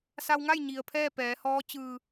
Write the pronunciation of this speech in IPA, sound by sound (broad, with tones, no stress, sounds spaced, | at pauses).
s a˧ w ŋ a˥˨ j ɲ i˩ ə̯ pʰ ɛː˥˨ p ɛː˩˧ h ɔː˧˥ t͡ɕ ɯː˧˩